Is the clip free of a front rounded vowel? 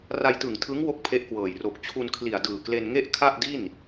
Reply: yes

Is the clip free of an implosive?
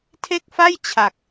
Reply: yes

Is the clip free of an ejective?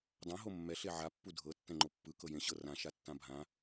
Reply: yes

